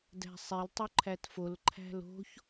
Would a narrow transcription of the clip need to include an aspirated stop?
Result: yes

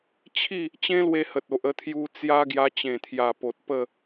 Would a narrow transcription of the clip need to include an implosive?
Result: no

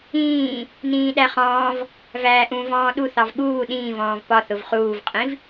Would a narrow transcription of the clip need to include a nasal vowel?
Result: yes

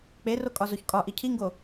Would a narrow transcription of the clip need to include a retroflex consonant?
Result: no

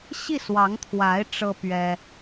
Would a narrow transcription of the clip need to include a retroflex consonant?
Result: yes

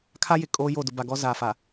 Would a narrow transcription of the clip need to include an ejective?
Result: yes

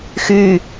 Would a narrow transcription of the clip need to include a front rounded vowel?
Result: yes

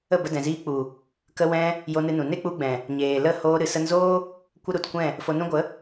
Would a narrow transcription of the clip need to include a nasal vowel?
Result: yes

